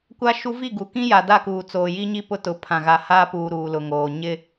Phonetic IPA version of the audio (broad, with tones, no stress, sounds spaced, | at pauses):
kʷ a˦ ʃ u˦ v i˦˨ ɡ u˨ k ĩ˦ j a˨ d a˦˨ k uː˨ t͡s oː˨ j i˦ ɲ i˦ p ʊ˦ t ʊ˨ pʰ ã˨ ɣ a˨ h aː˦ p uː˨ ɾ uː˨ l ʊ˨ ŋ oː˨ ɲ ɪ˦